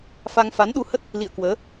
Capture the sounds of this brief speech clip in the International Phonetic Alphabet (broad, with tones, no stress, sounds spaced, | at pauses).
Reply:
f a˧ ŋ f a˨˦ n ɗ u˧ h ə˦˥ t̚ | l ḭ˧˨ ə̯ k w əː˨˦